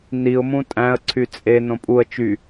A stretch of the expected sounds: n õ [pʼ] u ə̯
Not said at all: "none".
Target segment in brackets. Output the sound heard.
pʼ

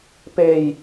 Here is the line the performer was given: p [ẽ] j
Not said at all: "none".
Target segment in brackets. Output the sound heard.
e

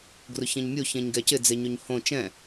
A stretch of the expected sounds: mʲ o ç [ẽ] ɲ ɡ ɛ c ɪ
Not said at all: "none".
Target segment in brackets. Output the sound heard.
ẽ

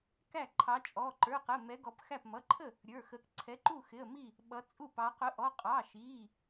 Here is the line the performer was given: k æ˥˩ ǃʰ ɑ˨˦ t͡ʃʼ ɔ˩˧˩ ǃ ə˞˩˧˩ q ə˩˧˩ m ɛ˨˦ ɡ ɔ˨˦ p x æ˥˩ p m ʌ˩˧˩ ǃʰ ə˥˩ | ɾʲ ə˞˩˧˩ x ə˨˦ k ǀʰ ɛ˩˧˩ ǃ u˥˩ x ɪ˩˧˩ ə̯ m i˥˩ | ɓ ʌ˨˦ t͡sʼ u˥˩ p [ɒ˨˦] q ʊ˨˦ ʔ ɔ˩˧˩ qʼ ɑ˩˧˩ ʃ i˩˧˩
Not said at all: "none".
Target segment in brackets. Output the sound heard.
ɑ˨˦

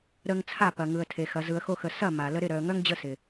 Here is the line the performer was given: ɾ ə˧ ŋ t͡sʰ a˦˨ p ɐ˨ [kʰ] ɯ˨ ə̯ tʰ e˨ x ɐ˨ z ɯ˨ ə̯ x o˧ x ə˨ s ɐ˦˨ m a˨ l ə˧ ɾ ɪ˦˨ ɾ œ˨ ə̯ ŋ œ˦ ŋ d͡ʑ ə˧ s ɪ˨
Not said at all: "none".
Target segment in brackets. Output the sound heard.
ŋ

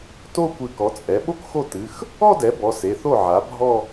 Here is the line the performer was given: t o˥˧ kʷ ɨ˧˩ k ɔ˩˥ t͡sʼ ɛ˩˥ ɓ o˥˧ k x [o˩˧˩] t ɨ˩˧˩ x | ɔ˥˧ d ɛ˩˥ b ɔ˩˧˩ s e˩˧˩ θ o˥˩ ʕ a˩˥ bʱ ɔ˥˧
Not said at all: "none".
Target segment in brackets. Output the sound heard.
o˥˩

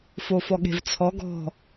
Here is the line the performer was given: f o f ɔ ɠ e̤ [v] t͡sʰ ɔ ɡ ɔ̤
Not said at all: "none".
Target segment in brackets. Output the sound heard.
v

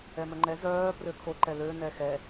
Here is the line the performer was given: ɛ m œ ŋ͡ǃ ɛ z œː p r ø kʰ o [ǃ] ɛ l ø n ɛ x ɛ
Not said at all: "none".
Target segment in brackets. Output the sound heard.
ǃ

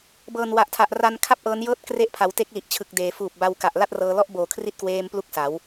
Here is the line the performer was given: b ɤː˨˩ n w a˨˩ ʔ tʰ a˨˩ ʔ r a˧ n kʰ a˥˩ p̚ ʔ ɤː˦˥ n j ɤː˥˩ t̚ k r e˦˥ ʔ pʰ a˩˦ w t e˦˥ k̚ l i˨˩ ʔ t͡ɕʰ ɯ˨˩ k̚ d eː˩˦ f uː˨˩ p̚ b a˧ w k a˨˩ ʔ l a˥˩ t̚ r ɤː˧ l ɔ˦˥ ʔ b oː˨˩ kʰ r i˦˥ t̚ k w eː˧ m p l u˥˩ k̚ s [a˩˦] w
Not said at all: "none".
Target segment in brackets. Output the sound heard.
a˩˦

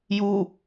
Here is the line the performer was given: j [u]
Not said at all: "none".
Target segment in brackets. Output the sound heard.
u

